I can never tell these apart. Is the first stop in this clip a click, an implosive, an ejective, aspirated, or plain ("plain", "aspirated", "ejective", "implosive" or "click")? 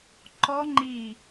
click